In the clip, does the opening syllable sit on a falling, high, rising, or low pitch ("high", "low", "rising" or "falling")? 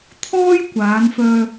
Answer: high